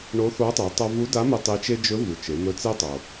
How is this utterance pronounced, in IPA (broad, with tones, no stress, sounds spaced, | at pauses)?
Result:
ɳ o˧˥ θ o˧˥ tˤ i˩˧ tˤ a˧ v u˧˥ d a˧˥ m e˧ tˤ i˧˥ t͡ʃ e˥ d͡ʒ ɵ˧˥ v u˩ t͡ʃ e˩˧ m ɵ˧˥ t͡s e˥ tˤ o˩